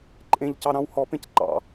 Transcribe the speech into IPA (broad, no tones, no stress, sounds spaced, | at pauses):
ǃʼ ẽ ʎ c ɑ ɾ ɑ̃ w h ɔ p ẽ c ǃ ɑ̰